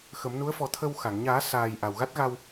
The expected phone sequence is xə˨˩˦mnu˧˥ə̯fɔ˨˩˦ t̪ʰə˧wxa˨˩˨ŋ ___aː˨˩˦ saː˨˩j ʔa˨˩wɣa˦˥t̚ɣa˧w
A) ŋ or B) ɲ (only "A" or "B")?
B